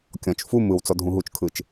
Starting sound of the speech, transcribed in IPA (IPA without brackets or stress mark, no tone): kʲ